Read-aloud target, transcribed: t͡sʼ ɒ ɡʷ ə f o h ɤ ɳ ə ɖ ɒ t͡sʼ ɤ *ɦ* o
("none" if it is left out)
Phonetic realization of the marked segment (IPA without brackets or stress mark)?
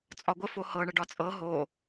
ɦ